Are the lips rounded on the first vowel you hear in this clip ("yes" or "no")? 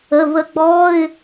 no